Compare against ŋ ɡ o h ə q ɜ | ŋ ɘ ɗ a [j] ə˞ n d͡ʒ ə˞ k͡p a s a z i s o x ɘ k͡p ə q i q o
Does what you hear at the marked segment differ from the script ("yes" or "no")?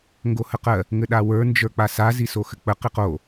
yes